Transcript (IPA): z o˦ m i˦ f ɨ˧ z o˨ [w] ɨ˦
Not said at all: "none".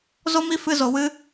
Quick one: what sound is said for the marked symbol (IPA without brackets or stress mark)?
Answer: w